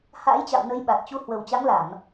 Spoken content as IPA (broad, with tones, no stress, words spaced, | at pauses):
ha̰ː˧˥jt͡ɕa̰˧˨w nə˨˦j ɓa˨˩t̚t͡ɕu˧ hwə˨˩wt͡ɕa˨˦ŋla˧˩˨m